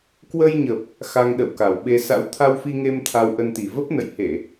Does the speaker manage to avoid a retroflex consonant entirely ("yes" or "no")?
yes